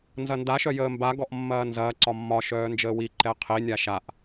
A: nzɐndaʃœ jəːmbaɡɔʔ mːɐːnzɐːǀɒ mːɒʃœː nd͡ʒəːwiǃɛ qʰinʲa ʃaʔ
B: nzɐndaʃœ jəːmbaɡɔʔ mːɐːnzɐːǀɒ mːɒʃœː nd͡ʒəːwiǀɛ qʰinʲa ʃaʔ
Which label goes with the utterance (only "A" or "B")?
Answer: A